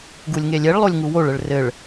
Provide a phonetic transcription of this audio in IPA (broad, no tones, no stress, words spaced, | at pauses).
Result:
ɡulʲŋelʲeɭlˠolʲ ŋuwoɭɘɭ rɘɭ